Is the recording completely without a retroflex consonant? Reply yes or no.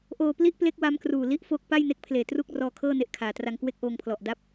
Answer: yes